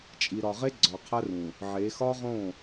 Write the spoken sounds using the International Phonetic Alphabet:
t͡ʃʼ i˨ ɾ ɒ˨ ʁ e˦ ɡ͡ǀ ɒ˨ qʰ æ˦ r ũ˨ | ʕ e˨˦ x ɒ˦ ʁ õ˦˨

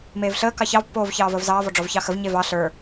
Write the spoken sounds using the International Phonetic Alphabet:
m eː v ɬ əː k ɑ ç ɑ v pː oː v ç ɑː v əː v z ɑː v ɔ ɖ͡ʐ ɔ v ç ɑ x ə v ɲ e v ɑ ɬ ə˞

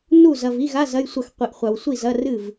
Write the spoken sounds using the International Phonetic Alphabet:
n u˥˩ z ɐ˨ v i˧˥˧ ɣ a˧˥˧ z ɐ˧˥˧ j sʷ ɐ˥˩ x qʷ i˨ ʔ χʷ a˨ w sʷ i˥˩ z ɐ˧˥˧ r ɨ˥˩ v

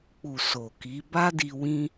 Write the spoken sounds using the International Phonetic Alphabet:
k͡p u˨ s o˨ k i˨˦ b a˦ d i˧ w ĩ˦

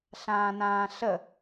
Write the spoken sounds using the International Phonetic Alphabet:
ɬ ãː n ãː ɬ ə

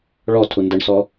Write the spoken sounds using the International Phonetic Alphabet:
ɭ ɔ tʰ u n d ə ɳ s ɔ

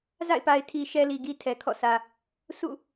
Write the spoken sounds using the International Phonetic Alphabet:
z a̰˦˨ ɪ̯ p a˨ ɪ̯ tʰ i˨ ʃ ɛ˦ l i˨ ɡ i˦ tʰ ɛ˨ kʰ ɔ̰˦˨ sʰ ä˨ | s ṵ˦˨

